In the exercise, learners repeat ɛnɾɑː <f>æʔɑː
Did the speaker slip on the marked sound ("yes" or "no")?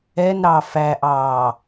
no